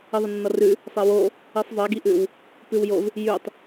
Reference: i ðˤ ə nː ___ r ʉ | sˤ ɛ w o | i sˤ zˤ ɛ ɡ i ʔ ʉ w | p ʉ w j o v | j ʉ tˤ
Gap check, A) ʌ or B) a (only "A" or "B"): A